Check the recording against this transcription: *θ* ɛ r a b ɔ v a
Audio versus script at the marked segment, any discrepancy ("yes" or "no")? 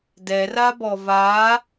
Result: yes